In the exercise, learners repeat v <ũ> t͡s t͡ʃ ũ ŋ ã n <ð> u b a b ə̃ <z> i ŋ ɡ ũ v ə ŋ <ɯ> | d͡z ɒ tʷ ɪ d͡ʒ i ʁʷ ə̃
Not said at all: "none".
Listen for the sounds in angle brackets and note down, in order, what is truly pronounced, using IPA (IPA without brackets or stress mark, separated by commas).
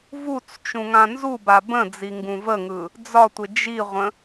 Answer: u, z, d͡z, ɯ